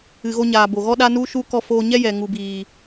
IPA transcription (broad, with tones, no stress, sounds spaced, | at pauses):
ɨ˨ ɣ o˧ ɲ aː˨ b o˨ ɣ ɔ˦ ɗ a˦ n u˦ ʃ u˦ k ɔ˧ f oː˧ ɲ ɛ˦ j ɛ˨ ŋ u˨ b iː˨